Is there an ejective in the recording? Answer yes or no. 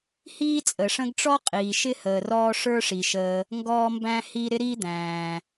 yes